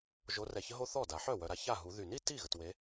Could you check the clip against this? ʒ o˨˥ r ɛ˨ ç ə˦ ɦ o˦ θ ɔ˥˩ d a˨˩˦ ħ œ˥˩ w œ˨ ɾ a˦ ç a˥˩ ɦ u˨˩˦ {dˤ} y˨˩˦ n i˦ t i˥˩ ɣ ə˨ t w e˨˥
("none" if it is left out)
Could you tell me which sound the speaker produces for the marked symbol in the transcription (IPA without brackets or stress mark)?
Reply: ð